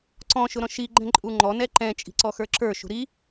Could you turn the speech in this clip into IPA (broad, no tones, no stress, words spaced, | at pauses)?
ǀɔ̃ ʃʊɾɔ̃ʃi ɡ͡ǃɛ̃ǃʼuŋ͡ǃɔ nɛǃɛ̃ t͡ʃʼi̤ǀɔxə˞ǁə˞ ʃṳɾi